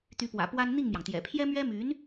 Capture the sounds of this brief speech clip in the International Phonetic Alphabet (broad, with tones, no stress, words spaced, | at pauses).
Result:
t̪y˧˥pwä̰˨˩ pwa˥n n̪i˥˩ŋmjɑ˩ŋt̪jɛ̰˨˩ pʰjɛ˥mɥɛ˥my˧˥n